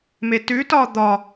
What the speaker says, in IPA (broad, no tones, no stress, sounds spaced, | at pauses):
m e t ʉ t ɒ d̪ ɒ